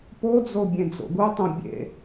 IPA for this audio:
p o d͡z o bʲ ẽ d͡z o̰ ɡ u tˤ õ bʲ ḛ

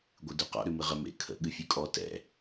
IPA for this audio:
ɡʷ ɨ d ʉ q ɔ̰ ɾ ʉ m ɨ ʁ ə m ḛ kʰ ə̰ ɠ ɨ fʲ ʉ kʼ ɔ t ɛ̰

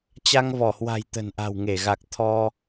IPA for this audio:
t͡ɕ a˧ ŋ v ɔ˧˩ h w a̤˨˩ j t̪ ə̤˨˩ n ʔ a̤˨˩ w ŋ e˧˩ ɣ a˨˩ k̚ t̪ʰ ɔ˧

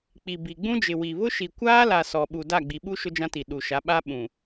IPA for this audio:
k͡p i˨ b i˨ ɡ͡b ũ˦ d͡ʒ ɪ˨ w i˨ β ʊ˦ ʃ i˨ kʷ aː˦ l a˨ s ɔ˨ ɓ u˨ d a˦˨ ɡ͡b i˨ ɓ u˦ ʃ ʊ˦ d͡ʒ ã˦ t i˨ ɗ u˨ ʃ a˨˦ ɓ a˦ ɓ ũ˨

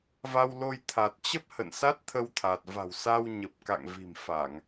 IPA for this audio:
v a˧ w l o˧ j t̪ʰ a˨˩ t̚ t͡ɕ ə˦˥ p̚ h ə̰˧˨ n s a˦˥ t̚ t̪ʰ ə˧ w t̪ʰ a˨˩ t̚ v a̤˨˩ w s a˧ w ɲ ə˨˩ p̚ k a̰˧˨ ŋ v i̤˨˩ m f a˧˩˨ ŋ

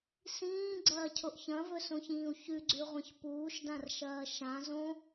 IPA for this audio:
s ĩː ɡ͡ǀ ɐː cʰ o ʔ ç ɐ̃ v ɵ s õ ç ĩː u̯ ç ʉ ɡ͡ǀ ʉ ʁʷ ɐ̃ ç p uː ʃ d ã r ʃ ɐː ʃ ã z õ

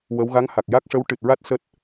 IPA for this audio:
w ə˧˥ w ɣ a˧˥ ŋ h a˨˩ k̚ j a˦˥ k̚ ʂ ə˧˥ w ʈ ɨ˨˩ t̚ ɹ a˦˥ t̚ s əː˦˥ t̚

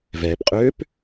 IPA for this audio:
v ɛː p qʼ øː p

